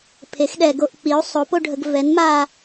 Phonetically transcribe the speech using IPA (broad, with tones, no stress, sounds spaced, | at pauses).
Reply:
pʰ e˩˥ x ɗ ɛ˨ ɡ o˦˨ ʔ k͡p i˩˥ u̯ sˤ o˩˥ p o˦˨ ɖʱ ə˨ ɡ v ɛ˩˥ n m a˦˨